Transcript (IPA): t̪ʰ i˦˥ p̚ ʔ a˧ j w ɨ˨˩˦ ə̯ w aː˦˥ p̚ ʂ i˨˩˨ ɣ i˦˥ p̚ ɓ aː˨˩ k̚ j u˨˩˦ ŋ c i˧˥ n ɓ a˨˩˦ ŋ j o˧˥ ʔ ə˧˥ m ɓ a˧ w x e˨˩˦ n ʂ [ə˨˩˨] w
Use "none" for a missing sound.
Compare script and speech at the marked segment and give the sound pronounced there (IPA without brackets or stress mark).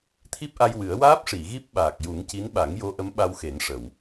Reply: ə˨˩˨